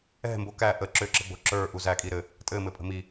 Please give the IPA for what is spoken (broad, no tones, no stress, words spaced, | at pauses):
ɛ̤mbo kæ ʔə ǁʏǁə̤ɡ͡bo̤ ǁə˞ʔu zækʼi ɾɘ | tʼɘmɘpʼə̤ mi